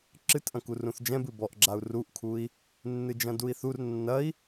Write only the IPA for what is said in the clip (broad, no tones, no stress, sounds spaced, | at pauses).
ǁ ɨ t ʔ ɐ̃ k u r ũ θ d͡ʒ ɛ̃ b ɨ b ɔ ʔ ɡ͡ǁ a u̯ r u ʔ kʰ u i̯ | nː ɨ d͡ʒ ɐ̃ d u i̯ θ u r nː ɐ i̯